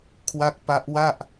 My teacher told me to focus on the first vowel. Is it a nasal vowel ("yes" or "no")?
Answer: no